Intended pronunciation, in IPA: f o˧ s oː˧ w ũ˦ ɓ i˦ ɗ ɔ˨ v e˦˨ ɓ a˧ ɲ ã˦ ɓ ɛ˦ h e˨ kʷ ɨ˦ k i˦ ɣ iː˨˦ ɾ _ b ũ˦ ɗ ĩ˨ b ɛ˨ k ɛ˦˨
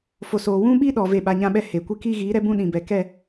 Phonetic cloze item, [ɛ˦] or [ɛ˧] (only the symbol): ɛ˦